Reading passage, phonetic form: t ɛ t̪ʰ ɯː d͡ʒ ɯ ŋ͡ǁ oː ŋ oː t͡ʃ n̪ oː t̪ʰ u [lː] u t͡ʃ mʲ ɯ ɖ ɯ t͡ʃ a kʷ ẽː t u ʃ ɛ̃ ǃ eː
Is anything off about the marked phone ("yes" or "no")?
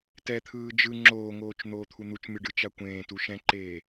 yes